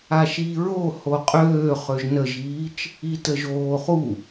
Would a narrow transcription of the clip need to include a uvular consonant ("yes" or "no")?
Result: yes